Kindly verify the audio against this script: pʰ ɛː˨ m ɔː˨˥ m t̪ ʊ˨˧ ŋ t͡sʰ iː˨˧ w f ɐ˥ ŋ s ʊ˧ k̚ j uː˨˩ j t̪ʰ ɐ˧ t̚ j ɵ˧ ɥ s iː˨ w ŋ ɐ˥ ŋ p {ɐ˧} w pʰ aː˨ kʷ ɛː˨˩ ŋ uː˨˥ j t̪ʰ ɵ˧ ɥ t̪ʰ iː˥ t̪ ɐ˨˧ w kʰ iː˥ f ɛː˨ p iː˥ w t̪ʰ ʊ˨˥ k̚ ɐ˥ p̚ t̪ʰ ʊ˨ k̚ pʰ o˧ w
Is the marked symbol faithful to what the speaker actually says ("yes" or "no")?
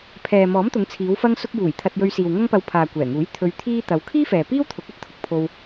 yes